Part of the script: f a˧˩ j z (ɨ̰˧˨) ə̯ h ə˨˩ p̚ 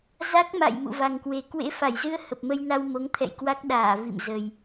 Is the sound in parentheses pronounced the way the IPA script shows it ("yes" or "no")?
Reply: no